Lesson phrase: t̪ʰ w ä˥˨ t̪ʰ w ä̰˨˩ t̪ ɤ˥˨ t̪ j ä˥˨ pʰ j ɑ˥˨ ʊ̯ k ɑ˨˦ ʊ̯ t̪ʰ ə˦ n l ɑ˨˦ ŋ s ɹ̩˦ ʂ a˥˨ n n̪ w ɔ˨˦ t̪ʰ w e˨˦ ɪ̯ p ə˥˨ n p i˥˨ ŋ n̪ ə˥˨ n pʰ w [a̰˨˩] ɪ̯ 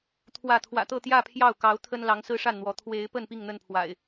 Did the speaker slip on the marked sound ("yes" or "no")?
no